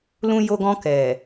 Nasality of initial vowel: nasal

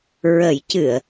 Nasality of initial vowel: oral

